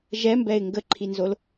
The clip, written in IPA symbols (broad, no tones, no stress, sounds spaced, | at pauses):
ʒ ɛ m b ɛ ɪ̯ ŋ ɡ ə ǃʰ i n z o l